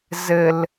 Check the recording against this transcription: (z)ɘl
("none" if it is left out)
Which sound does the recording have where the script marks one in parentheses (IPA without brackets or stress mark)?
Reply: z